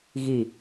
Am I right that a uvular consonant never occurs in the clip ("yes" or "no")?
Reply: yes